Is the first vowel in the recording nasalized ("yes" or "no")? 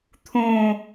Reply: yes